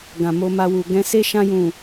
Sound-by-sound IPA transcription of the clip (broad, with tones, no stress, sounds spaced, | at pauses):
ɡ ã˨ m o˧ m a˧ w u˨ ɡ ɛ̃˧ s e˦ ʃ ã˧ j ũ˨